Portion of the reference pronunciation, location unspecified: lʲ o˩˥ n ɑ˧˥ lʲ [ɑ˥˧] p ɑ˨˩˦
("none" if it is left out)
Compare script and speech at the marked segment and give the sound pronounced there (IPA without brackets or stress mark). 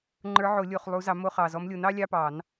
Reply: ɑ˧˥˧